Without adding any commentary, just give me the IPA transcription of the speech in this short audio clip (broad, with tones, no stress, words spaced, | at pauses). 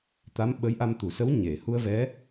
t̪a˧˥m ɓə˧˥jʔa˧mt̪u˨˩sə˧˥w ɲe˨˩˨ hu˧ə̯vɛ˧˥